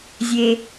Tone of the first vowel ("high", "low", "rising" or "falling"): low